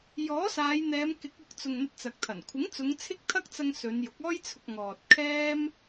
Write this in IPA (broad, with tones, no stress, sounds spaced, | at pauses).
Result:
j ɔː˨˥ s aː˨˧ j n̪ ɛː˨˧ m k ɪ˨˥ k̚ ʊ˨˥ k̚ t͡s ʊ˨ ŋ n̪ ɐ˧ t̚ t͡s ɐ˨ k̚ t̪ʰ ɐ˨˩ n kʷʰ ɪ˨˥ ŋ t͡s ʊ˨˧ ŋ t͡sʰ ɪ˥ k̚ t̪ʰ ɐ˥ k̚ t͡s ɐ˧ ŋ s ɵ˨˧ n j ʊ˨˥ k̚ ɔː˥ j t͡sʰ ʊ˧ k̚ ŋ ɔː˨ t̚ kʰ ɛː˥ m